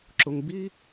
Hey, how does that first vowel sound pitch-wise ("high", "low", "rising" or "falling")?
high